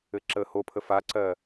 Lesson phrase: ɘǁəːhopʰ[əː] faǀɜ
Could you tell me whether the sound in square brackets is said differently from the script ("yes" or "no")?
yes